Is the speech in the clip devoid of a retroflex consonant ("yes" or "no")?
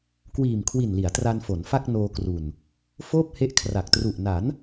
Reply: yes